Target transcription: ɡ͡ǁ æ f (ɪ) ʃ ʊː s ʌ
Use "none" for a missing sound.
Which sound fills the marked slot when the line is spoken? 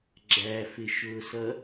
ɪ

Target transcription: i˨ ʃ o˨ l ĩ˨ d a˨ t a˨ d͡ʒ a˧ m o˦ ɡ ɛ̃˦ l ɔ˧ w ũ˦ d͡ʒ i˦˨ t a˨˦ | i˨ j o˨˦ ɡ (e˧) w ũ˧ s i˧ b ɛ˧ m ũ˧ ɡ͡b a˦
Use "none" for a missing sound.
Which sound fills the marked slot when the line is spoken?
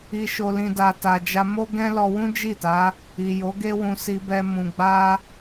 e˦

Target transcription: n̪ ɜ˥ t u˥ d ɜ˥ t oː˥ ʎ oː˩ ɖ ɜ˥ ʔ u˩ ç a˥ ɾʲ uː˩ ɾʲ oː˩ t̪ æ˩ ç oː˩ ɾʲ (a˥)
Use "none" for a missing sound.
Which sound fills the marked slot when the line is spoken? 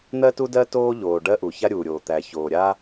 a˥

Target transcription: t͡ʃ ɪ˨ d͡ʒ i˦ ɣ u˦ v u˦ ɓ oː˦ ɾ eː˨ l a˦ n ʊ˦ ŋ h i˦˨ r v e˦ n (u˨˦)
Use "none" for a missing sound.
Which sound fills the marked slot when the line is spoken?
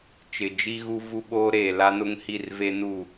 u˦˨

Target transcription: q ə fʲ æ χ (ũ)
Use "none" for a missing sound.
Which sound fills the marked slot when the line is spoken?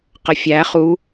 u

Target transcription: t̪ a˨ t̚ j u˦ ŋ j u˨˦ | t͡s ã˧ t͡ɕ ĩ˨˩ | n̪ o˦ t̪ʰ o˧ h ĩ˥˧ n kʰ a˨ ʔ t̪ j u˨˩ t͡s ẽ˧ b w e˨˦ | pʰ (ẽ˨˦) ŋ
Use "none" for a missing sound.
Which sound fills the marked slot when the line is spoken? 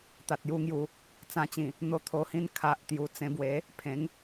ẽ˨˦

